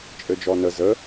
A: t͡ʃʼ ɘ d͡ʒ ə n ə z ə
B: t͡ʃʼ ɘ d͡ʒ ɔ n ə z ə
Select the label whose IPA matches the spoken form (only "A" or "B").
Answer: B